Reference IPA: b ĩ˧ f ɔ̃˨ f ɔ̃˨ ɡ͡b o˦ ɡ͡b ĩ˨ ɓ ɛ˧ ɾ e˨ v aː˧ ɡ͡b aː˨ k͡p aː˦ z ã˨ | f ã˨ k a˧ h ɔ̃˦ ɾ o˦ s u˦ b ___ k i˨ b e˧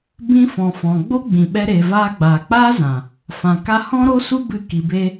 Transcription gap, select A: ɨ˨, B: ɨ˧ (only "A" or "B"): B